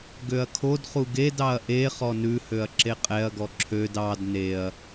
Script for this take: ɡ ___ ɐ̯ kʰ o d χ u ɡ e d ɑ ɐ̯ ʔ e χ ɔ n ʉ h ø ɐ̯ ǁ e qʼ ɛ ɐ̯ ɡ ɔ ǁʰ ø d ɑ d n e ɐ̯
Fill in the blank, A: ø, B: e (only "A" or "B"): A